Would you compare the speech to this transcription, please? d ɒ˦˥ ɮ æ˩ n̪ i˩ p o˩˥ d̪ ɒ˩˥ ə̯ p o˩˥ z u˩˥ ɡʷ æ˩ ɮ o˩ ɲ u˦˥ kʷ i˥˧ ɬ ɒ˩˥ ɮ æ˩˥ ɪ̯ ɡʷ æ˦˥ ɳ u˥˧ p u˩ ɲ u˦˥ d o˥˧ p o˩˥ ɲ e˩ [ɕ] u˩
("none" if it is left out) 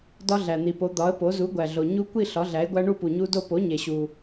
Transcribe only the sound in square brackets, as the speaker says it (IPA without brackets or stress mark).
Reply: ɕ